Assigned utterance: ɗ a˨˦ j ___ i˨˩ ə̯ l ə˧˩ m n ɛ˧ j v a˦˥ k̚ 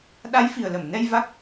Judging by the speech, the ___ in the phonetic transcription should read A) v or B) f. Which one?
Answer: B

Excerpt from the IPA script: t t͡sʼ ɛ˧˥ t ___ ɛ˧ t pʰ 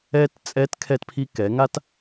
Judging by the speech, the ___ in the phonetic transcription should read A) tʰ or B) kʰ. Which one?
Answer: B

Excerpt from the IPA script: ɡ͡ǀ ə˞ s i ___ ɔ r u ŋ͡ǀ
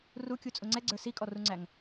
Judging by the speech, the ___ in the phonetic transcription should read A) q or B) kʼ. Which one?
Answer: B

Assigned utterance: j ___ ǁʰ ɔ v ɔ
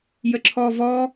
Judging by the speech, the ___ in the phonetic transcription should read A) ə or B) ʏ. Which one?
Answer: A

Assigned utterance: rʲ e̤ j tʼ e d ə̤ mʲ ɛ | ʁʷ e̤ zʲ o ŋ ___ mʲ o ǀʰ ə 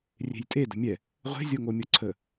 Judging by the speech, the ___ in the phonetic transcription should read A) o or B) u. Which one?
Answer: A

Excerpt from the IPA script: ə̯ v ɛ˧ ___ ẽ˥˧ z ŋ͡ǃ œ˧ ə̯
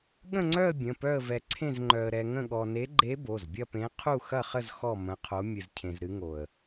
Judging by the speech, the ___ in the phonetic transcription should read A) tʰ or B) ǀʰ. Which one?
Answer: B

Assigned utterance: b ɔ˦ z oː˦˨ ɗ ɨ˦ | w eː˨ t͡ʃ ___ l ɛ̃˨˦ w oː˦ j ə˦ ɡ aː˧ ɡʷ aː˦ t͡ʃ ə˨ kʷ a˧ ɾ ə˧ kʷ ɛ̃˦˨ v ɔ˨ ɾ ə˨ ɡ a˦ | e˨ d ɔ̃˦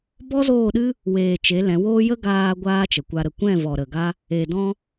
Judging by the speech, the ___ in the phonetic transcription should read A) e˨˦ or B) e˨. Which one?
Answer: A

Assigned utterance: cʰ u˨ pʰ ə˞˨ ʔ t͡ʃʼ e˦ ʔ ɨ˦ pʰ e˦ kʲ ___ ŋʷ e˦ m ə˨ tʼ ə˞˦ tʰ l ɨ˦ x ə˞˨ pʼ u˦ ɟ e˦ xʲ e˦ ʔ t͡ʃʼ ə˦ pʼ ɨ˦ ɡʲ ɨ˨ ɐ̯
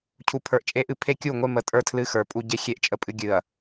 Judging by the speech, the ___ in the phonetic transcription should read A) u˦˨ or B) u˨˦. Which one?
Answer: A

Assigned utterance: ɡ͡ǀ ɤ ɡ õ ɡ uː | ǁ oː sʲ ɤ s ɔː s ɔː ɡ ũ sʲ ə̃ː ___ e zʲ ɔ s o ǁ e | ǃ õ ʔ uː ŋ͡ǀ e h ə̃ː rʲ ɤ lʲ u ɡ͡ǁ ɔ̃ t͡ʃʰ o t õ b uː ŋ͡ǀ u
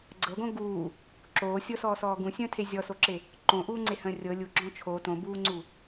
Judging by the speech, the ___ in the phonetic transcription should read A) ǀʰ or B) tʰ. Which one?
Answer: B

